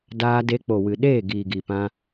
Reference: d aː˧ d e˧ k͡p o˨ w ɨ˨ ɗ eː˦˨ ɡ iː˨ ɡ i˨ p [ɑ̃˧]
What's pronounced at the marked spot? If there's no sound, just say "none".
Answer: ã˧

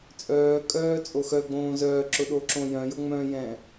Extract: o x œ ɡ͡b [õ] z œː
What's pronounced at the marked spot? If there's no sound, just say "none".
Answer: õː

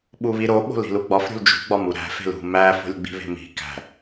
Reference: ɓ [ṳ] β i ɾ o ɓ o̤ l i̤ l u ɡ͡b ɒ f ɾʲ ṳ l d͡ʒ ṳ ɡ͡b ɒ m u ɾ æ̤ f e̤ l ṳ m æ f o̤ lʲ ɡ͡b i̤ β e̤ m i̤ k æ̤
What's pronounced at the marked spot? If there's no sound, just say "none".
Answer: u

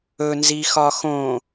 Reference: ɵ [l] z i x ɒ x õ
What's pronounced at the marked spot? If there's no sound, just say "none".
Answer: n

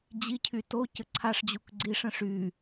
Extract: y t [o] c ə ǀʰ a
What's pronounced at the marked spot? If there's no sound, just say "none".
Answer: o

